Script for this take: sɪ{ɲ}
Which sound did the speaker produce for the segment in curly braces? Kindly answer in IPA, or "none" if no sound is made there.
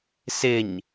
ɲ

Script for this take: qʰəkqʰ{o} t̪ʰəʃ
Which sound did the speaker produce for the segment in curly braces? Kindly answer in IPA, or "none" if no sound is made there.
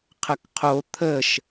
o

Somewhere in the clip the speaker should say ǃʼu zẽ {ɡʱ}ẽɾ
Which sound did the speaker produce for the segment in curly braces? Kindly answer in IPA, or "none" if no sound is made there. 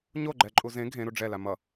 ɡʱ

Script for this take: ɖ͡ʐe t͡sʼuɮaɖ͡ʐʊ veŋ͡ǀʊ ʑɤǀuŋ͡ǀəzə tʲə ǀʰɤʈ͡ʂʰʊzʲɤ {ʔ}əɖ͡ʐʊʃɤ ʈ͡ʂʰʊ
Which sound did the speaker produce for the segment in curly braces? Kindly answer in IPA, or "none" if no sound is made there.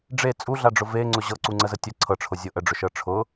ʔ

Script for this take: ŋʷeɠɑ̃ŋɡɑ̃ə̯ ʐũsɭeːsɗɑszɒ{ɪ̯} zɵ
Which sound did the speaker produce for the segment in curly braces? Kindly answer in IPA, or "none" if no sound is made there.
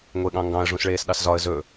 ə̯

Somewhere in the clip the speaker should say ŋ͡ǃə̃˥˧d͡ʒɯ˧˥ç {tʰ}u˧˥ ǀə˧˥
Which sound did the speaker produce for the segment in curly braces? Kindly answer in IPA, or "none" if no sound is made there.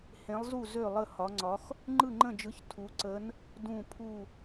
tʰ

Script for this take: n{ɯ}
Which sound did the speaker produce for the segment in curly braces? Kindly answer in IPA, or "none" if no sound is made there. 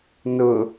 ʊ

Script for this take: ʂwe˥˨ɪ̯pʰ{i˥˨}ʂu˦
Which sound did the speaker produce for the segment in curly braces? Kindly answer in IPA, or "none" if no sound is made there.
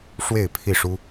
i˥˨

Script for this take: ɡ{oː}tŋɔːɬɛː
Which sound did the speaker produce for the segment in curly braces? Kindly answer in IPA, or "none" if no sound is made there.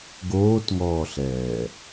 oː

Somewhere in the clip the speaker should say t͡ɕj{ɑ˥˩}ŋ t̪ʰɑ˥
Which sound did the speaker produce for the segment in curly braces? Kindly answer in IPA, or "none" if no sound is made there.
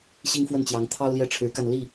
ɑ˧˥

